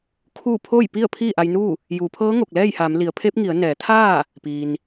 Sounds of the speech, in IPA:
kʰu˥˨ pʰo˥˨jpi˥˨ə̯ pʰiː˥˨ʔa˧jnuː˥˨ | juː˩˧pʰɤː˧˥ŋo˧˩k̚ lɛː˥˨jha˩˧mli˩˧ə̯pʰe˧˥p̚ ŋi˩˧ə̯nɛː˩˧t̪ʰaː˥˨ | piː˩n

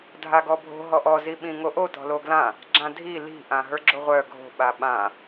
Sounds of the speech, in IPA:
dʱaɡɔbʱo̤ ɦɔʔɔ ziɓĩŋoʔo tɔ̤loɡlã | ɡ͡ǁãdʱi li̤ ʔãɦə˞ɡ͡ǁoʁʷœ ɡʱo̤ ɓaɓã

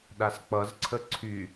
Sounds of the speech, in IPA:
ɗask͡pʌzǀʰə ǀʰy

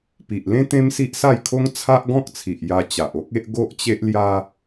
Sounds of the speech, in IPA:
pi˨ʔlẽ˦ t̪ẽ˦msi˦ʔsa˥˧jkʰo˦ŋ t͡sʰa˦ʔɡɔ̃˦k̚t͡sʰi˨ʔ ja˧ t͡ɕa˨ʔo˦k̚e˦ʔ ɡo˦ʔt͡ɕe˦ʔlja˦

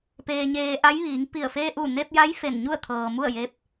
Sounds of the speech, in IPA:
peː˧ɲeː˧ ʔa˧˥jʋiː˩˧ŋpi˧˩ə̯ feː˧ʔu˧˩ne˧p̚ja˧˥j fe˧˩nɲu˥˨ə̯t̪ʰɤː˩ mu˥˨ə̯je˧p̚

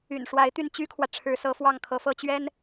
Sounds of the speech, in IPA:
y̰˨˩nʂwa˧˥ɪ̯ t̪y˥˩nt͡ɕy˥kʰwä˨ ʈ͡ʂʰɻ̩˧˥sɤ˧˥fwɑ˥˩ŋkʰɤ˧˥ fɤ˥˩t͡ɕɥɛ˥n

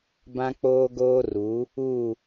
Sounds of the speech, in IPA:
bã˦k͡poː˦ ɡoː˦ru˨˦ | u˦˨

